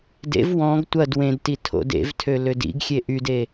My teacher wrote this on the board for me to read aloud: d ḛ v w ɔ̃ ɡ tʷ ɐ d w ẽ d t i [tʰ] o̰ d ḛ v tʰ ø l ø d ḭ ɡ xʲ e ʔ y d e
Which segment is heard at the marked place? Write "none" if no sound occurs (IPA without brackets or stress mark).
tʰ